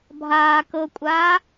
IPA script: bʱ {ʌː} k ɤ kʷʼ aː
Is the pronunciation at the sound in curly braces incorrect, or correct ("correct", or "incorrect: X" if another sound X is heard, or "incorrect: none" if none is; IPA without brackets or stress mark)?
incorrect: aː